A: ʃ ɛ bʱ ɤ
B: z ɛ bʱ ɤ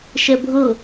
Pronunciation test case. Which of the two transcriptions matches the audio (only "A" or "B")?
A